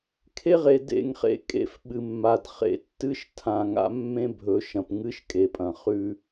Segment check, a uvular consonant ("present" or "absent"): present